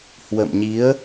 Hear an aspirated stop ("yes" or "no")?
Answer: no